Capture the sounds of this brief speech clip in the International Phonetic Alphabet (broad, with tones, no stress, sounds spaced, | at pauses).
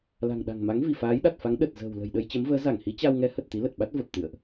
l a̤˨˩ ŋ ɗ a̤˨˩ ŋ m a˨˦ ŋ v i˧˩ f aː˨˦ j ɗ a˨˩ t̚ f a˨˦ ŋ ɗ ə˨˩ t̚ z ə̤ː˨˩ w l ə̤˨˩ j ɗ ə˧ j t͡ɕ ə˨˦ m v əː˨˦ z a˧˩ ŋ h i˨˦ t͡ɕ a˧ w ŋ ɛ˨˦ h ə˨˩ t̚ t̪ i˨˦ l ə˨˩ t̚ ɓ a˦˥ t̚ v ə˨˩ p̚ t̪ ɨ̰˧˨ ə̯ ʔ